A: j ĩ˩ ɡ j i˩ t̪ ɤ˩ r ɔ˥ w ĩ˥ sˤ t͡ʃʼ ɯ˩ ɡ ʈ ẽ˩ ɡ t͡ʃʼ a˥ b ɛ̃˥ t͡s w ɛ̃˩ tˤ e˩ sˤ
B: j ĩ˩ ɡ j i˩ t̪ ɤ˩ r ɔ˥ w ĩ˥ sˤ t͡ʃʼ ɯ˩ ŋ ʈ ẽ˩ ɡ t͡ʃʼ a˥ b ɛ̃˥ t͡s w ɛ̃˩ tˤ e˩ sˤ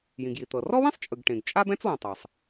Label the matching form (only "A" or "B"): A